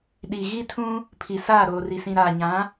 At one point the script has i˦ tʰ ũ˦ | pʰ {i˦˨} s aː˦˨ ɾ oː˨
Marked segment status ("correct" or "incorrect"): incorrect